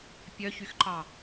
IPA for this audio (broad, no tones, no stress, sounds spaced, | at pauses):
pʲ œ ç y x ǃ ɑ